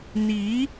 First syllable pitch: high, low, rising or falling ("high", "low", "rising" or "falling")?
rising